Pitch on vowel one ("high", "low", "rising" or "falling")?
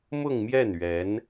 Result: falling